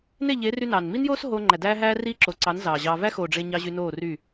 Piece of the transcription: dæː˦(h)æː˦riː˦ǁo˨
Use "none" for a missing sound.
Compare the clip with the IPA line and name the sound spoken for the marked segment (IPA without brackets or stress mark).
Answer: ɦ